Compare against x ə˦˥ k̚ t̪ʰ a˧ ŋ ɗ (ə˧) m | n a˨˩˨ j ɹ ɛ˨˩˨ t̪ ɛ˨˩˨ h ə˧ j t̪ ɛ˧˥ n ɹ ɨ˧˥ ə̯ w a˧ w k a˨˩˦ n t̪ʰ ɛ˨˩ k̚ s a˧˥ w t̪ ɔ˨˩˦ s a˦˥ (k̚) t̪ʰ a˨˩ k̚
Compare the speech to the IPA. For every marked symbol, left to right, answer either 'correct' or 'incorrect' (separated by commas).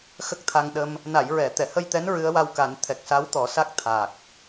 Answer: correct, correct